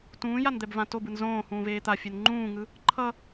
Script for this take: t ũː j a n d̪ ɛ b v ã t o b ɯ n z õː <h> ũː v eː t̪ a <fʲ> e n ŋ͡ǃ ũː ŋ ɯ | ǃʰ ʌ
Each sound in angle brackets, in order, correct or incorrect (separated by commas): correct, correct